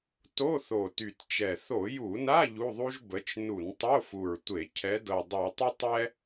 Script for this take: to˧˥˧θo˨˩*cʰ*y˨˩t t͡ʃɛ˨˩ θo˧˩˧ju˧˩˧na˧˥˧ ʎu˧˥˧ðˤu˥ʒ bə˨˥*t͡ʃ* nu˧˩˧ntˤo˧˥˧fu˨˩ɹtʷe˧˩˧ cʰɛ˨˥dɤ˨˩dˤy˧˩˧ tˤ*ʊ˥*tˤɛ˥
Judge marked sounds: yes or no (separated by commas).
no, yes, yes